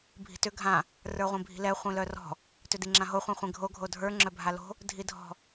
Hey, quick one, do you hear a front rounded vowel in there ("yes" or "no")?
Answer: yes